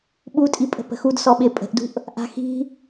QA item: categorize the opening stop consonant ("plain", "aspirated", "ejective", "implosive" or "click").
implosive